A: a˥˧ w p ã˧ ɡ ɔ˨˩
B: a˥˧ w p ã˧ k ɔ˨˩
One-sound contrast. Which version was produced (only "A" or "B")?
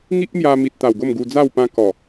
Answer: B